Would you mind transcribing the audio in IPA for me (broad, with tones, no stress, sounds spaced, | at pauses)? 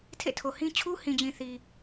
tʰ ḛ˦˨ tʰ o˨ h ĩ˦ t͡ɕʰ u˦ h ĩ˨ d͡ʑ ĩ˨ θ i˨